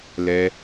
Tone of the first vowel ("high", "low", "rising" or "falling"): high